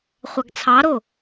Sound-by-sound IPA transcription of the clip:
χʷ ɑ ɡ t͡sʰ ɑ ɾ o

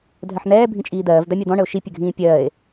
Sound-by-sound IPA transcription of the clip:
dʱ ɜ ħ n̪ ɛː bʱ ĩ t͡ʃʼ iː d̪ ɜː v d̪ a mʲ a d̪ ɔ̃ ɳ ə o̯ ʃ i pʲ ə ɡʱ ĩː pʲ ɜː e̯

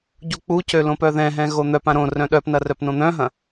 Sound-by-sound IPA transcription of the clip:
ɟ u k͡p u c ø l õ p œ ð ɛ̃ ɦ ɛ̃ ɣ o n̪ œ p ã ɾ õ r œ̃ ɗ œ p n ɐ r œ p n õ n̪ œ̃ ɦ ɐ̃

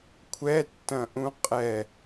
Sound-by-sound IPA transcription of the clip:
kʷʰ ɛ tː ɐ̃ ʔ ũ qʼ ɛ

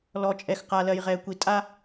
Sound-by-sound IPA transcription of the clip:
l ɔ˨ t͡ʃʼ ɛ˨ x q a˨ l ɜ˨ j ʁ ɛ˨ kʷ i˨ tʼ a˦

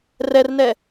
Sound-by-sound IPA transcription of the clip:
r ɛ r n ɛ

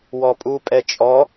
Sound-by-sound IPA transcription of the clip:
w ɔ pʼ u pʼ ɛ t͡ʃʼ ɔ

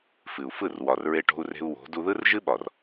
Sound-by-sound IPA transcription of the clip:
f ɨ˨ u̯ f ɯ˦˨ r w ɒ˨ r ɹ e˧ ʈ o̤˧ u̯ r e̤˧ u̯ w o̤˨˦ d u˧ ð ɯ˦ r ʒ ɨ˦ ɓ ɒ˨ r

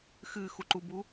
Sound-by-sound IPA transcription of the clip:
x ɨ x u ǃ u b u

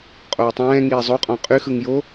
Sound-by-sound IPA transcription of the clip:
qʼ oː tˤ ɛ̃ː ŋ iː zˤ o qʼ ɔ̃ qʼ y x ɯ ŋ j o

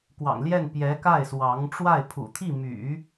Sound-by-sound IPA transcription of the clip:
k w ɑ̰˨˩ ŋ l j ɛ˥˩ n p j ɛ˧˥ k a˥˩ ɪ̯ s w ɑ˧˥ ŋ ʈ͡ʂ w a˥˩ ɪ̯ pʰ ṵ˨˩ t̪ʰ i˥˩ m y̰˨˩˦

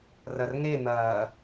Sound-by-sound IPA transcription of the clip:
r ɐ r ŋ e n̪ ɐ

